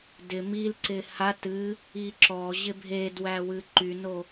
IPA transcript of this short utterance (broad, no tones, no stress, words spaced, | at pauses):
dɪ mil ǀɪhat ɨ | iǁɔ ʑɪbʱedwæwɨ ǃyno